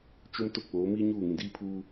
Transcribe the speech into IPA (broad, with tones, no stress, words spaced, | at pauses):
t͡ʃo˦m tʊ˦˨ k͡poː˨˦miː˦ɲuː˦˨ŋĩ˨ diː˦pʰuː˦